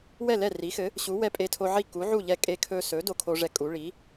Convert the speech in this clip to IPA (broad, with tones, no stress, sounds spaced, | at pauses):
w ɛ˥˩ l ɛ˥˩ r i˩˥ x ɘ˩˥ | ɕ u˩˥ w ɛ˧ pʼ e˧ tʰ o˧ ʕ i˥˩ k u˩˥ ʕ u˥˩ ʎ ɛ˧ kʼ e˧ kʰ ɵ˧ s ɵ˩˥ d o˧ kʰ o˧ ʐ ɛ˧ kʼ u˩˥ ɭ i˩˥